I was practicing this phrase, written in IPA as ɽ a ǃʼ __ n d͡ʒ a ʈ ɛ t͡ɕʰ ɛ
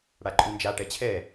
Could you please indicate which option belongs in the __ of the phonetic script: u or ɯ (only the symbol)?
u